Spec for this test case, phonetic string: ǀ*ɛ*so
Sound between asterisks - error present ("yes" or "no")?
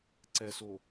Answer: no